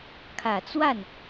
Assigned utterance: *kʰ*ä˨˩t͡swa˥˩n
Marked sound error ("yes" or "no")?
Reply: no